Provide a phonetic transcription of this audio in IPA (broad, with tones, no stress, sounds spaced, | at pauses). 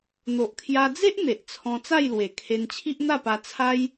n̪ o˨ ʔ kʰ j a˧ d͡z e˦ ʔ n̪ e˨ ʔ t͡sʰ ɔ̃˧ t͡s a˥˧ j l w e˨˩ kʰ e˧ n t͡ɕʰ i˦ ʔ n̪ a˥˧ p a˧ t͡sʰ a˦ j